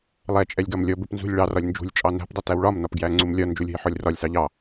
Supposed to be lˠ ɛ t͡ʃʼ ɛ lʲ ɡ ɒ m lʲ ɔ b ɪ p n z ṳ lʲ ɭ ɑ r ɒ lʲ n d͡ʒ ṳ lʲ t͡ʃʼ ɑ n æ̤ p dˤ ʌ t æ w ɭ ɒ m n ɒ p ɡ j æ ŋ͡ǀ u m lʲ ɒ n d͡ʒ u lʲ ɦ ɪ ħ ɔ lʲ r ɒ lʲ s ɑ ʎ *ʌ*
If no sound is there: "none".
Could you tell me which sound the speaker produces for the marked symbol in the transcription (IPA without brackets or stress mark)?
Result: ɑ